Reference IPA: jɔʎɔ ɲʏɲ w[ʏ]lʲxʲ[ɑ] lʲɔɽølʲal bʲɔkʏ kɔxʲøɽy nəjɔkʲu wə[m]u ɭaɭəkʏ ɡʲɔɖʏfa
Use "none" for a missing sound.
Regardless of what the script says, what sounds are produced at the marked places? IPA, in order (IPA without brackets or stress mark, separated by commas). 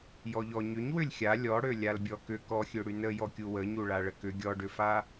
ʏ, a, ɲ